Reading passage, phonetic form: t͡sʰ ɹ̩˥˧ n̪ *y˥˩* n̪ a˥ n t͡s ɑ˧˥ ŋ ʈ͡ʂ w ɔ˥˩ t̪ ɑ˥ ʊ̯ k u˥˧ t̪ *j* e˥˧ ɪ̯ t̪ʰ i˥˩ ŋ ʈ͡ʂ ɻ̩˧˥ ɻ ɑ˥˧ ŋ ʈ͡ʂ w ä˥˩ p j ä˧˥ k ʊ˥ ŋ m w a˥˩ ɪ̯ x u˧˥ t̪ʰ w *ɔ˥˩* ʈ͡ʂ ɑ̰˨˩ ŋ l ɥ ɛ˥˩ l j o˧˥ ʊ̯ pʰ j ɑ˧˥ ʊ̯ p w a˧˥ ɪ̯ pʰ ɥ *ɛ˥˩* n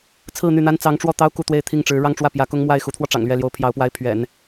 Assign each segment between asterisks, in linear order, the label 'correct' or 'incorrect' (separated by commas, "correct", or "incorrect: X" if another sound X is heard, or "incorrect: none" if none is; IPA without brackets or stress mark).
correct, incorrect: w, incorrect: ɔ˧, incorrect: ɛ̰˨˩˦